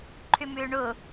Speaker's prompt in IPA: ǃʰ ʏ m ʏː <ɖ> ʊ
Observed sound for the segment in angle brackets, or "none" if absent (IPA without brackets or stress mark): ɳ